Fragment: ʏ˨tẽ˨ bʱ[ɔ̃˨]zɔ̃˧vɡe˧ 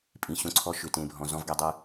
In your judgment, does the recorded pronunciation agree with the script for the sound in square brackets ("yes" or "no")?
yes